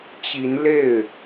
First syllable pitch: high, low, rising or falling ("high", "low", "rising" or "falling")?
rising